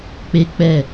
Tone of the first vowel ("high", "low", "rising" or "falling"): high